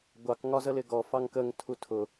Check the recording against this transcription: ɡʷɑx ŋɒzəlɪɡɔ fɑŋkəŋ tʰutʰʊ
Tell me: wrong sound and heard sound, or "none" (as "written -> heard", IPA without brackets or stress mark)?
x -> k